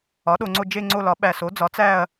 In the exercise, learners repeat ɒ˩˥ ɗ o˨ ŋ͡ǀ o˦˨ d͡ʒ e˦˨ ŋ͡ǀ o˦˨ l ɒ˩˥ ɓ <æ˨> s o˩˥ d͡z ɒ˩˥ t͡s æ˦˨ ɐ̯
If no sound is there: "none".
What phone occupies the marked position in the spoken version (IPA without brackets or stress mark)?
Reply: æ˨